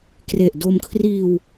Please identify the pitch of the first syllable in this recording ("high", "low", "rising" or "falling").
low